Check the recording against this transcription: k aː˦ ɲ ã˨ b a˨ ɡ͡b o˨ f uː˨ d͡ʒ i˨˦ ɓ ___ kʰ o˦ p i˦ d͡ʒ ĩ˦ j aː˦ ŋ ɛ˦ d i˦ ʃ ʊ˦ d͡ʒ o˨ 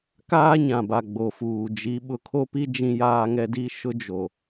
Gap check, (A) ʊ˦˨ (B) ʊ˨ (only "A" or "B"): B